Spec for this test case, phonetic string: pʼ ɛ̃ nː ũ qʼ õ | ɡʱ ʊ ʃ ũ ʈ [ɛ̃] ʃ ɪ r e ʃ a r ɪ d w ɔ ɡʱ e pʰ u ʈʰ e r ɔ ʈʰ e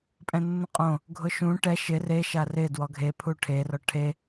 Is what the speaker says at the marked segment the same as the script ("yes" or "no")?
no